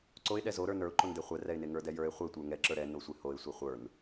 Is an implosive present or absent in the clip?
present